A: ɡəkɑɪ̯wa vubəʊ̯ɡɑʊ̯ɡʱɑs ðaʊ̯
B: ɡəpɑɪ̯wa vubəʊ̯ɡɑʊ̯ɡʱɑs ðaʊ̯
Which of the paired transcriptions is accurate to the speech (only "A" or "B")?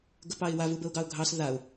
B